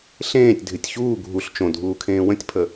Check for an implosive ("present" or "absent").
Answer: absent